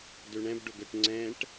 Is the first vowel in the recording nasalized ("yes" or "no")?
no